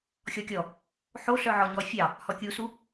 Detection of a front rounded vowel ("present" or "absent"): present